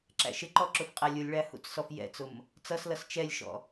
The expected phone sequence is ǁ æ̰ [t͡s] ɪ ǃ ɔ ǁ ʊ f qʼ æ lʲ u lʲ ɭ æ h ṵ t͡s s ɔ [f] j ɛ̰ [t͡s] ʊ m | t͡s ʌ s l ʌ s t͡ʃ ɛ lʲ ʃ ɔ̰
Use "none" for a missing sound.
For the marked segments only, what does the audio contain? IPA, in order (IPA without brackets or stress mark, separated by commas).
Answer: ʃ, f, t͡s